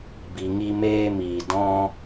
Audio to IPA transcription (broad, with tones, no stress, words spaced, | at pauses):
bi˧ŋi˦meː˦ miː˨dɔ̃˦